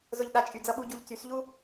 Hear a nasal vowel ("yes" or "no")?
no